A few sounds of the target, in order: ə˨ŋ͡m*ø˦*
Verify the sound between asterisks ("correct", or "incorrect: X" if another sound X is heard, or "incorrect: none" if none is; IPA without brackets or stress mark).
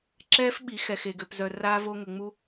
incorrect: u˦